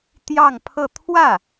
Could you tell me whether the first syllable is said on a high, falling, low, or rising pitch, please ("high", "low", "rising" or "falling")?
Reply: falling